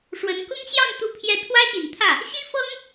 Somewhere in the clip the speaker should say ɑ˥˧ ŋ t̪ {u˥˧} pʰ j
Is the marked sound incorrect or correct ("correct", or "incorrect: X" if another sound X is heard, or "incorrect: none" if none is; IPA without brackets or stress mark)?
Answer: correct